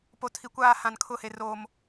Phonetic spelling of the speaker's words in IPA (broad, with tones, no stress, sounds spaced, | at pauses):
p o˨ tʰ i˨ kʷ aː˦˨ h ã˨ n kʰ ʊ˦˨ h e˨ r oː˨ m